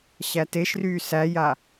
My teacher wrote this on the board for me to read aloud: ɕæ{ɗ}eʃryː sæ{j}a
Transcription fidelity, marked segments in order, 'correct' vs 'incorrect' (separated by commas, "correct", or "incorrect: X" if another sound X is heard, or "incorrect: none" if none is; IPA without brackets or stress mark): incorrect: t, correct